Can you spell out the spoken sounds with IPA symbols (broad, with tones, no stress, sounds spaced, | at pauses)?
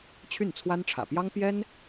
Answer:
t͡ɕʰ y˥˩ n t͡sʰ w a˥ n ʈ͡ʂʰ ä̰˨˩ p j ɑ˥ ŋ p j ɛ˥ n